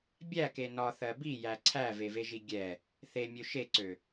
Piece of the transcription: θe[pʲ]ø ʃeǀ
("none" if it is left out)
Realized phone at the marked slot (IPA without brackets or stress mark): mʲ